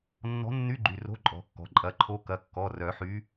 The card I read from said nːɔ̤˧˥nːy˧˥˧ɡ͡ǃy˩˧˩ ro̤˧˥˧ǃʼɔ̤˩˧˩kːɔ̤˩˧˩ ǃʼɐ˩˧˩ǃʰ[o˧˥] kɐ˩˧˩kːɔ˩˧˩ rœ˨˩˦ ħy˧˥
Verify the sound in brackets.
correct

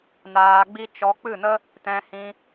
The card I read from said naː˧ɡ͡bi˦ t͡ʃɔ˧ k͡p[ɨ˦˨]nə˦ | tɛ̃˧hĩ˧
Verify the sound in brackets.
correct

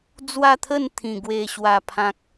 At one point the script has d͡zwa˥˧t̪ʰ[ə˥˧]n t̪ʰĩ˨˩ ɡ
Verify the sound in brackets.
correct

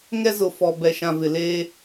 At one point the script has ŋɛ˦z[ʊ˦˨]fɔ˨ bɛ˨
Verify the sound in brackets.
incorrect: ʊ˨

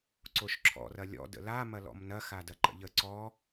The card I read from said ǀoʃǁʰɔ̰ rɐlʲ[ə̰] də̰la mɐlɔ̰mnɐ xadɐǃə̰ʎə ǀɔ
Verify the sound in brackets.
incorrect: ɔ̰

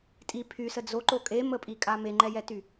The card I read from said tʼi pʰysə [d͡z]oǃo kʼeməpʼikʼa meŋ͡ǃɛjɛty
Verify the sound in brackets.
correct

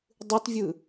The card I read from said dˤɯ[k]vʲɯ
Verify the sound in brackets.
incorrect: t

